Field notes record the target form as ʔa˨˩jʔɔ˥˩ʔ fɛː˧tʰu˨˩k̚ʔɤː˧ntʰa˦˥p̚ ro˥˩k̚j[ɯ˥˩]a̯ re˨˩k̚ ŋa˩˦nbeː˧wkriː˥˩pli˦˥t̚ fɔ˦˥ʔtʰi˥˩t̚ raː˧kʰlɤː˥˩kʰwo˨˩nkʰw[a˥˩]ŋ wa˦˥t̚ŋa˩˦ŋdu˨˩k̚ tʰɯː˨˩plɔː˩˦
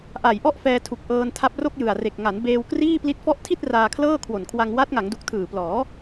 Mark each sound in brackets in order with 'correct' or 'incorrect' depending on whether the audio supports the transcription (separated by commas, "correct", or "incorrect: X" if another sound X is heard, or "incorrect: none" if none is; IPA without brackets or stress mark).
incorrect: ɯ˨˩, incorrect: a˧